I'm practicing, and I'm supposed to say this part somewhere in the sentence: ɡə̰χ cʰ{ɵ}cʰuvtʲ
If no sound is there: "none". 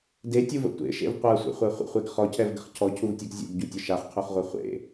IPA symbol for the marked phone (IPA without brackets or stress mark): ɔ